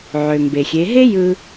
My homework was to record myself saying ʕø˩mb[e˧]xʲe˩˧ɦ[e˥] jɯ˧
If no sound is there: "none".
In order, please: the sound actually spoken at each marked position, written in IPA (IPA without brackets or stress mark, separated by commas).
e˩, e˥